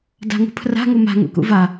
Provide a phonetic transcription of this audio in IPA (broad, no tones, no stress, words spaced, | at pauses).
da̤ŋṳpʰra̤ ŋuma̤ ŋṵkṵva